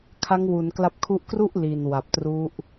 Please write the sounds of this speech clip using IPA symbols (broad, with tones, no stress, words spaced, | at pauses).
kʰa˦˥ŋwu˩˦nkla˦˥p̚kʰu˥˩ʔ kru˥˩ʔ li˨˩nwa˨˩p̚tru˦˥ʔ